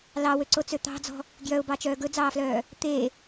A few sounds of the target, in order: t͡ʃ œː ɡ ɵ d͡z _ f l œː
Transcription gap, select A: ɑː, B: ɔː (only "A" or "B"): A